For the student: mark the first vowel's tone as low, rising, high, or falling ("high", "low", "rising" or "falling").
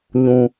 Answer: low